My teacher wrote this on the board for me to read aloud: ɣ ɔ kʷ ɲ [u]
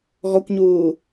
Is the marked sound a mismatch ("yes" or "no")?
yes